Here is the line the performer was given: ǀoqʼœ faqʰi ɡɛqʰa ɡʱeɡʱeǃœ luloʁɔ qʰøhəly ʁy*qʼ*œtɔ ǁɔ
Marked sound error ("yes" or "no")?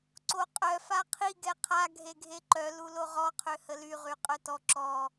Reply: no